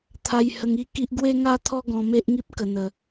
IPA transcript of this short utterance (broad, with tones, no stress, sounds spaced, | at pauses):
t̪ʰ a˧ j h ə˧ ŋ i˥˧ k i˦ ʔ ɡ w e˦ ŋ a˦ t̪ʰ ɔ˦ ɡ ɔ̃˧ m e˦ ʔ ŋ i˦ p̚ k ə˧ n̪ ə˧